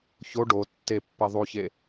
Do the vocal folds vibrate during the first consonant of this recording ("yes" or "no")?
no